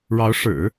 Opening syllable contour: rising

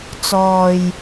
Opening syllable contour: low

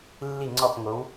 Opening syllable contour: falling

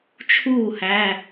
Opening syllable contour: falling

